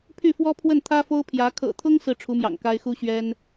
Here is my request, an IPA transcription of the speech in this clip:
pʰ y˥˩ f w ɔ˥ pʰ w ə˥˩ n t̪ʰ ä˥ f o˥ ʊ̯ pʰ j ä˧˥ kʰ ɤ̰˨˩ t̪ʰ ʊ˥ ŋ s ɹ̩˥˩ ʈ͡ʂʰ u˧˥ m j ɑ̰˨˩ ŋ k a˥ ɪ̯ x u˥ ɕ ɥ ɛ˥ n

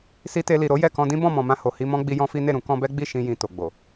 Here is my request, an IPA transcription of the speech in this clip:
s i˧ t e˧ l i˨ ɾ o˨˦ j ɛ˦˨ k ɔ̃˧ d ĩ˦ b ɔ̃˦˨ m ɔ̃˨ m ã˧ h o˨ h i˧ m ɔ̃˦ ɡ͡b i˧ j ɔ̃˦ f i˦ n e˦˨ ɾ ũ˧ k ɔ̃˧ b ɛ˦ ɡ͡b i˦˨ ʃ ĩ˧ j ĩ˨ t o˨ ɡ͡b o˨

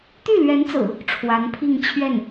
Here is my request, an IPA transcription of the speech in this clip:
t̪ y˥˩ l ɥ ɛ˧˥ n t͡s ɹ̩˨˩˦ | ʈ͡ʂʰ w a˧˥ n pʰ i˥˧ ŋ t͡ɕʰ ɥ ɛ˥˩ n

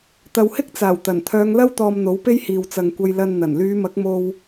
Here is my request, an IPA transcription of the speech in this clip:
t̪ ɐ˨ w h ɪ˥ k̚ t͡s aː˨˩ w t̪ ɐ˨˩ n t̪ʰ œː˨˧ ŋ l ɐ˥ w t̪ ɔː˧ m n̪ o˨˥ w p e˥ j h iː˨ w t͡s ɐ˨ ŋ kʷ ɐ˧ j l ɐ˧ n n̪ ɐ˨˩ n l yː˨˧ m ɐ˨˥ k̚ m o˧ w

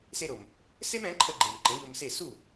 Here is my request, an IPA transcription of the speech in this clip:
s e˧ ɾ o˩ m | s e˥ m ɛ̃˩˥ ǃʰ ə˧ ɡ͡ǃ e˩ m ǃ ə̃˩˥ ʎ o˧ m s e˥˩ s u˥˩

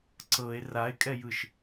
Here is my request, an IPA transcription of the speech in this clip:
ǀ ɤ e̯ r a e̯ kʼ ɛ j ɯ ʃ

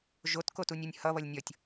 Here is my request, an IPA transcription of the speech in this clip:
ʒ o t k o t u nʲ u nʲ h ʌ β ʌ lʲ nʲ ʌ tʲ

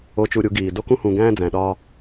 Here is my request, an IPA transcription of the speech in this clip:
o˨˦ t͡ʃ u˨ ɾʲ u˨˦ ɡ iː˨ d o˦ k ũ˦ h ũ˨ ɡ æ̃ː˦ d͡z æ̃˨ ɗ ɒː˦

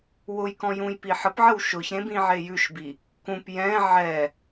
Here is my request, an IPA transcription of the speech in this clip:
w ʊ j k ɔ̃ j ũ j p i ħ ə p ʕ ə w ʃ ʊ ç ɾ ẽ b ĩ ʕ e j ʉ ʃ b i | k ũ p j ɛ̃ ʕ ɛ

